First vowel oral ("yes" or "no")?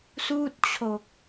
yes